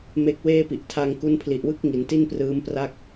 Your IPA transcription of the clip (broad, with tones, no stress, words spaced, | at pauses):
me˦˥k̚weː˥˩ pi˨˩ʔ tʰa˧ŋ ku˦˥npʰli˨˩ʔwɯ˥˩k̚ ŋi˩˦nti˥˩nprɯː˦˥mpra˥˩k̚